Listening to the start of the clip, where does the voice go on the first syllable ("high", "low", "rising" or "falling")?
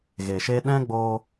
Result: low